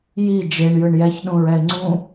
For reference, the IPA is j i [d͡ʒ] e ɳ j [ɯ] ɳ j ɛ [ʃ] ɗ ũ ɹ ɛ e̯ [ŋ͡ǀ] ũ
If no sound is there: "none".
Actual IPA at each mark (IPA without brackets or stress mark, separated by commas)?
d͡ʒ, ɯ, ç, ŋ͡ǀ